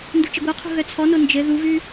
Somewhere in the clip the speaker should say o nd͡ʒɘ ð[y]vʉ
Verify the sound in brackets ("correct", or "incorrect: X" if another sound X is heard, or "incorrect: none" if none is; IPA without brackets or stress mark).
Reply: incorrect: u